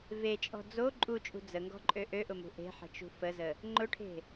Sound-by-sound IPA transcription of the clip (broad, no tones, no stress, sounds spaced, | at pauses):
v e t͡ʃʼ ɔ̤ d͡z o ǃʼ u t͡ʃʼ ṳ d͡z ə ŋ ɡ ɔ̤ ǃʼ ø ʔ ø ʔ ʊ m ṳ ʔ e̤ ħ ə̤ t͡ʃ ṳ f ə z ə | ŋ͡ǃ ʊ ʈʰ e̤